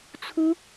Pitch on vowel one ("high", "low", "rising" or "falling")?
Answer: high